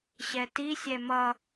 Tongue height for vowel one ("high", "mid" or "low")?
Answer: mid